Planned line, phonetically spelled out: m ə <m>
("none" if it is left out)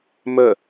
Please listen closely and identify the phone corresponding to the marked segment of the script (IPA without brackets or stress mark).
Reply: none